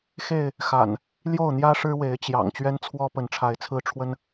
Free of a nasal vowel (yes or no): yes